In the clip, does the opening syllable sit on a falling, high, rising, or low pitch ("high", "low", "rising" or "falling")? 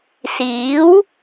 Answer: rising